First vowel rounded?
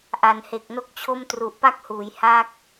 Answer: no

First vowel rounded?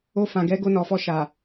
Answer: yes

